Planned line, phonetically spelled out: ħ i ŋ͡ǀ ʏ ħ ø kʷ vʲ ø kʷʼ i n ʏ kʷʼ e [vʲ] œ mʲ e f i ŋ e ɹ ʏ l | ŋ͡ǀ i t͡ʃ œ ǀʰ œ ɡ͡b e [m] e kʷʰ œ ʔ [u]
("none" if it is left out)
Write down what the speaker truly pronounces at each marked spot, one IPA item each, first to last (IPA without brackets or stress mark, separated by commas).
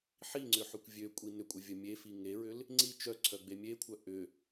vʲ, mʲ, ʏ